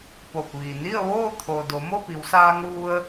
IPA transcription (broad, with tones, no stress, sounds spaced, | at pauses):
p o˧˩ p̚ ʋ i˩ n i˥˨ ə̯ ʋ oː˥˨ t̪ʰ o˩ d o˩˧ m o˥˨ p i˩˧ w s aː˧ ŋ ʋ u˧ ə̯